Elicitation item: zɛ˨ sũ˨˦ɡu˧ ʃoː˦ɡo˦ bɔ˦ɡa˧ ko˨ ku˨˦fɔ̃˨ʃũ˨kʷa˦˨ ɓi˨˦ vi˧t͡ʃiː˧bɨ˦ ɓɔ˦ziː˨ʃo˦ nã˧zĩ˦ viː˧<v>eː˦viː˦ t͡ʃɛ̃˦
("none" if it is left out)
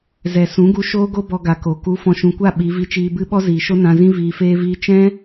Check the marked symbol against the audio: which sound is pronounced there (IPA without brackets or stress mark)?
f